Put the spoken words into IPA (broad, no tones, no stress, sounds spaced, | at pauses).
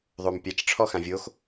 ðˤ o m pʲ a t͡ʃ ʈ͡ʂʰ ɔ x ã vʲ o x